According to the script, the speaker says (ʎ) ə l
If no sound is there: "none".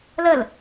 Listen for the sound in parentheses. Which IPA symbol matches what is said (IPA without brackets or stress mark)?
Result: l